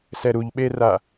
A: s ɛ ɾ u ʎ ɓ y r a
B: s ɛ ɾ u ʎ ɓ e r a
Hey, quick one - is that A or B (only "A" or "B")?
B